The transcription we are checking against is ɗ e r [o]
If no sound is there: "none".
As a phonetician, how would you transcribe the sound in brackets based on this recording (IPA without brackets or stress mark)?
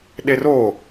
o